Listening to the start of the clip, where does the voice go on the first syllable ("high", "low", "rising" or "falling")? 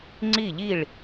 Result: falling